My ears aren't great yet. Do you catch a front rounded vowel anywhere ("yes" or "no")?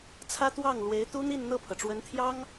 no